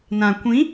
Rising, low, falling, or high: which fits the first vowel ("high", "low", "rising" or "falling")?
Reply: low